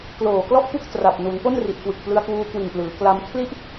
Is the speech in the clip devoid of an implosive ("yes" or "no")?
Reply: yes